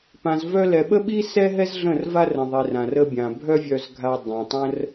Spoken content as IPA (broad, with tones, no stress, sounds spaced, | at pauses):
p ã˨ z v œ˧ l ɛ˨ ɓ ə˦ ɓ i˦ s ɛ˦ ɦ ɛ˦ z ɮ ə̃˦˨ r v a˦ r ə̃˨ ðˤ i˨ r ã˨ r ə˧ bʲ ã˨ bʱ œ˦ vʲ œ˧ z ɡʱ a˧ dˤ ã˨ tˤ ə̃˦ r